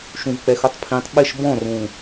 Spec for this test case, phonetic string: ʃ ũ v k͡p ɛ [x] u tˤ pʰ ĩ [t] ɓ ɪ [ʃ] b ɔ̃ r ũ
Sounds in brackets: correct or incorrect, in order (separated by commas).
correct, incorrect, correct